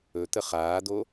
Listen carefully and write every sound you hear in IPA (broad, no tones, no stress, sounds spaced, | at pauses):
ɵ t̪ ə χ aː d̪ o